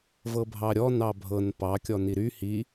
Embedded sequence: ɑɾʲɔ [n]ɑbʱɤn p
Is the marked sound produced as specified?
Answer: yes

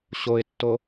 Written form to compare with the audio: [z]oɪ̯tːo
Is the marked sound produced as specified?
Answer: no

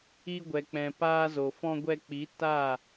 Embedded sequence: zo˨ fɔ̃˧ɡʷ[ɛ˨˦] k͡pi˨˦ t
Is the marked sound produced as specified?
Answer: no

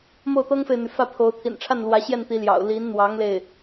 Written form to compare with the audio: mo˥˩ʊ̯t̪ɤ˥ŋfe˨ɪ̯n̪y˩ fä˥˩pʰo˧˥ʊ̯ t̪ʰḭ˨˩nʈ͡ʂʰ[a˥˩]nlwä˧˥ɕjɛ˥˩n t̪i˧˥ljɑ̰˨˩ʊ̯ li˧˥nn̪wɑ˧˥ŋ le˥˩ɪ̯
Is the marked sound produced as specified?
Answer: yes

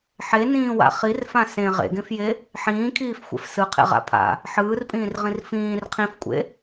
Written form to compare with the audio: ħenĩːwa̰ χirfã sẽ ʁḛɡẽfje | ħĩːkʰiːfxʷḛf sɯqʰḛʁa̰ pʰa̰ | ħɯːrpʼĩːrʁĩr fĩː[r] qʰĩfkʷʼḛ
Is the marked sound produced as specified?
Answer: yes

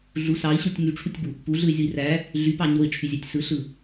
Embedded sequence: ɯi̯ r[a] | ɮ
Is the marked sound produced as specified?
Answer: no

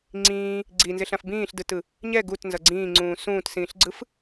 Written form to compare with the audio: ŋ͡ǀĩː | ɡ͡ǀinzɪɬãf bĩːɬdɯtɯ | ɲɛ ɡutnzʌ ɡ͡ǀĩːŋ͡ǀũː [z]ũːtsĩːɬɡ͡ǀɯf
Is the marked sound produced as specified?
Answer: no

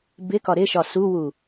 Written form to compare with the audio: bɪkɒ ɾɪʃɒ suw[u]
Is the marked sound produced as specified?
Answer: yes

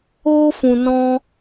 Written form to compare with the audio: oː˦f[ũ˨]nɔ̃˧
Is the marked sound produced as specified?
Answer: yes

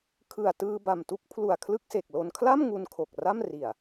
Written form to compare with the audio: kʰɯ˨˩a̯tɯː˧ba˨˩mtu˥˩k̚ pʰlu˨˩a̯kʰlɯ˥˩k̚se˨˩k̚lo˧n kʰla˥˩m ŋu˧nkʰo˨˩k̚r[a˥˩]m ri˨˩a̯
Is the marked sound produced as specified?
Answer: yes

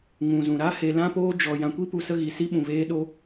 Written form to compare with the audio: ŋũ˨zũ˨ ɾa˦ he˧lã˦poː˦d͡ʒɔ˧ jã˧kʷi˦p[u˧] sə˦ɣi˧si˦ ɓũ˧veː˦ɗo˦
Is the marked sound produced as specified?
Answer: yes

